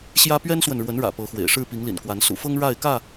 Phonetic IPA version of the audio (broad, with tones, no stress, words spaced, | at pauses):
ɕjä˦ pɥɛ˦nswə˨nɻwə˨˦nɻä̰˨˩ pɤ˨˦xwḛ˨˩ɪ̯ ʂɻ̩˥˨pi˨˦ŋlḭ˨˩nkwa˨˦n sṵ˨˩fɤ˦ŋ ɻa˥˨ɪ̯kä˥˨